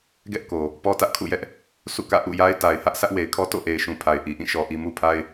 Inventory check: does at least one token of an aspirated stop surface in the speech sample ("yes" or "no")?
yes